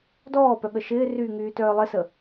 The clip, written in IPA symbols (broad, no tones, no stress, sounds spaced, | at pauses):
d ɔː p œ ɠ ə ʃ ɪː r yː ŋ yː t œː lˠ ɪ s ə